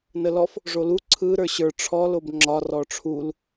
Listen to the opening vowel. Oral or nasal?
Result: oral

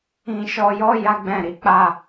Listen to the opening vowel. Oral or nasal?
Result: nasal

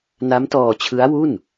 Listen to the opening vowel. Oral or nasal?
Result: oral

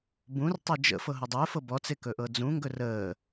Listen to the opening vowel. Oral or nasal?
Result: nasal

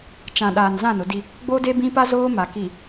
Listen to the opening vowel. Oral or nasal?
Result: nasal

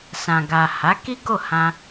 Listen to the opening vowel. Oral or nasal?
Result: nasal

